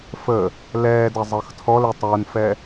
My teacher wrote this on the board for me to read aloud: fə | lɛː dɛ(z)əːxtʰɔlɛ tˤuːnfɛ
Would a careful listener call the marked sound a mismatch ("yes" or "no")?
yes